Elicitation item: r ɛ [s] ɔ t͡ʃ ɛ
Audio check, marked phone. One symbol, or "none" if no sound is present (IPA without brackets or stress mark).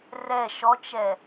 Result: ʃ